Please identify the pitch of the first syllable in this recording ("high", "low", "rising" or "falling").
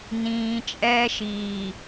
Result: low